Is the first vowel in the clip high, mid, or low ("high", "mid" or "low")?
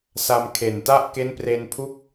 low